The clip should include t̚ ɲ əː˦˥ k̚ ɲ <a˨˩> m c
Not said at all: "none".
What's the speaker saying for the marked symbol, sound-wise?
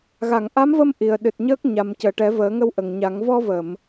a˨˩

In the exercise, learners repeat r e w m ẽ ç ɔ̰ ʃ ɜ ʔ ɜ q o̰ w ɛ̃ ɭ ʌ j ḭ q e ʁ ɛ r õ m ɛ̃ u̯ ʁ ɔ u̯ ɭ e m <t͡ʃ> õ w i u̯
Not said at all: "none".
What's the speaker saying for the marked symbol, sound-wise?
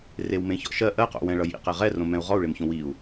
ç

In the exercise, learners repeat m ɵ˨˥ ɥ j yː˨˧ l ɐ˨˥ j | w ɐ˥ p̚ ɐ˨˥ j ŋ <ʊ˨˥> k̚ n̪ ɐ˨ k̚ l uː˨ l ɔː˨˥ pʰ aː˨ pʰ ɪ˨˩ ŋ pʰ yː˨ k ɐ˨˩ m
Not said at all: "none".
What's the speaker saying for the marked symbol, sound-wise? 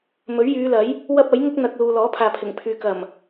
ʊ˥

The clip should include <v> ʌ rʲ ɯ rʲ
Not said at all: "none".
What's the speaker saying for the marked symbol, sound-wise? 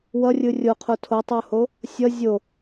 w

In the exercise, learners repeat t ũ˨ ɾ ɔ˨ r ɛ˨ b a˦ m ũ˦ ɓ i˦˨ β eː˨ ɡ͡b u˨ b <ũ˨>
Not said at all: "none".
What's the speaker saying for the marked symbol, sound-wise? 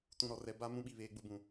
ũ˨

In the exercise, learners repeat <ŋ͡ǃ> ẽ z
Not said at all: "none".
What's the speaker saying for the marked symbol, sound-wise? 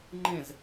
ŋ͡ǃ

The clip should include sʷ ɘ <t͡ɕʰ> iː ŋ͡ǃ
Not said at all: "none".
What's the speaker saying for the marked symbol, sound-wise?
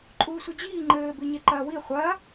d͡ʑ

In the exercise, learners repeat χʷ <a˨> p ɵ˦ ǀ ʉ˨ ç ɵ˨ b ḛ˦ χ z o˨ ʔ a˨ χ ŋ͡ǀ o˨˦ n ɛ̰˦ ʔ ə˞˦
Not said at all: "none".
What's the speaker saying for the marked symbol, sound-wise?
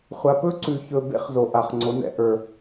a˨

